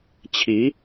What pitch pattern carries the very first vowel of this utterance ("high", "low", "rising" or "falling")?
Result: rising